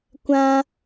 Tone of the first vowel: high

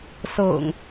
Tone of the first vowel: low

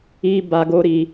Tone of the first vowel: high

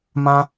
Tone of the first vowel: high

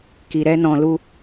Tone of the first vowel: low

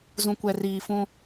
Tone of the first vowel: low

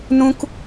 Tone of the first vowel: high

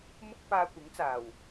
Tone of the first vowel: high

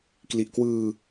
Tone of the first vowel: low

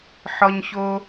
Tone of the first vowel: high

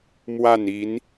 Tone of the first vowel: falling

